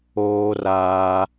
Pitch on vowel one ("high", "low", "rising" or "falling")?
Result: high